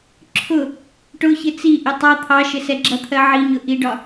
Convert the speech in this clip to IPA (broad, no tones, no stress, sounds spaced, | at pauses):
ǁʰ ʊ | ʈ ʊ ç ɪ t͡s i ʔ ɪ tˤ ɑ t̪ʰ ɑ ʃ ɪ s ɛ ɡ͡ǁ ʌ t̪ʰ ɜ ʕ i ɲ ʊ ʔ i ɖ ɒ